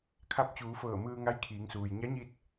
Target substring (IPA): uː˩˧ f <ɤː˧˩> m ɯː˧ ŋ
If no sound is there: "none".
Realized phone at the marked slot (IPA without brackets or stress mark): ɤː˧˩